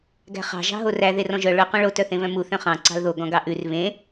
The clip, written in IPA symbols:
ɡæ̤χɑ̤ ʒɑ̤ɦoræ ðerɔ̃ʒœ ɭɵ qœ̃ɭo tœθẽβœ̃mu θœ̃χɑ̃ ǀɑ̤lðo ɡɔ̃ɡɑʔʉr βẽ

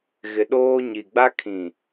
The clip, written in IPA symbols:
ɣɪ˦ ɗoː˦ ɲi˨ɡ͡ba˦ kʰĩ˨

